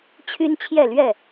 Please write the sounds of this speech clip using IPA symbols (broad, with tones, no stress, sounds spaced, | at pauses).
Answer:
t͡ɕʰ y˦ n t͡ɕʰ j ɛ˥˨ l ɥ ɛ˥˨